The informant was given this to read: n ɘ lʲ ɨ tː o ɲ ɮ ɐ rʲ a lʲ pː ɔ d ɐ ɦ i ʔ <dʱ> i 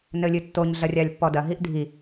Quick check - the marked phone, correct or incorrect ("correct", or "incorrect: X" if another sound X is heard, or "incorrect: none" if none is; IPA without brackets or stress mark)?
correct